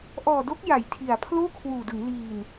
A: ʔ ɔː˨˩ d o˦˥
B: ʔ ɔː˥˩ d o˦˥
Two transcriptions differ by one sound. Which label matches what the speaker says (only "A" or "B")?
A